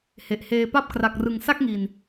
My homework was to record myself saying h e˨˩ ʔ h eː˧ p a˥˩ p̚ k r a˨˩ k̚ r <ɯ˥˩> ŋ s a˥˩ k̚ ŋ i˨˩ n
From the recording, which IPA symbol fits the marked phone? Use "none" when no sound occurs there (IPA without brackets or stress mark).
ɯ˨˩